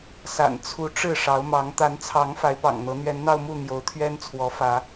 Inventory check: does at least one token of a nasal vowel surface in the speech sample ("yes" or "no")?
no